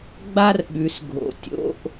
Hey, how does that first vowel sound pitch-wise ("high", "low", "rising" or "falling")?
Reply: high